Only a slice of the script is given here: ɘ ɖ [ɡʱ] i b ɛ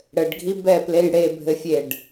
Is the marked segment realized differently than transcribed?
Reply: no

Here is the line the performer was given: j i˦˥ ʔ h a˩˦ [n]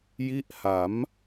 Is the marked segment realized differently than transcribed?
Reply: yes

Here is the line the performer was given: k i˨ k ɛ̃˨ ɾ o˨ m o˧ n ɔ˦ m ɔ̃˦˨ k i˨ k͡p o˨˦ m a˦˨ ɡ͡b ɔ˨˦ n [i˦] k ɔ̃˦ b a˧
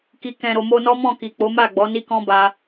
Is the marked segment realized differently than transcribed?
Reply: no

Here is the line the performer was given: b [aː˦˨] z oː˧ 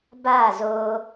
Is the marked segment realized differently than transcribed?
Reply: no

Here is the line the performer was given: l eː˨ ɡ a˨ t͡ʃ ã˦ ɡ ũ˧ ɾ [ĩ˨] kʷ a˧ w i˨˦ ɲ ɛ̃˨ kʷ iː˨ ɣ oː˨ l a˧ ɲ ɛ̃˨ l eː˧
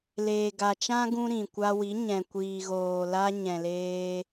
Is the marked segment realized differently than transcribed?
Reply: no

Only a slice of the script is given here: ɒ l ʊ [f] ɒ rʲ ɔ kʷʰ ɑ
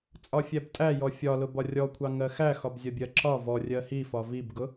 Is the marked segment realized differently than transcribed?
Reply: yes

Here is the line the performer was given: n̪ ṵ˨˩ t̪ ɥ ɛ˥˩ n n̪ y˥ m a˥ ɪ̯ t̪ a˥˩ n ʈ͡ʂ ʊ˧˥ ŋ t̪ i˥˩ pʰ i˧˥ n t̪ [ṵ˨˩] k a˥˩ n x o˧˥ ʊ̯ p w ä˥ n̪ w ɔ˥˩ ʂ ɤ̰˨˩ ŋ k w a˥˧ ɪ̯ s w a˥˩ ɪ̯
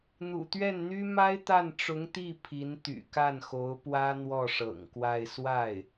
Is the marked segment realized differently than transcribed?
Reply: yes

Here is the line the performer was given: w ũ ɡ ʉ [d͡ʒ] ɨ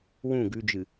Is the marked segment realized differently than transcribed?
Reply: no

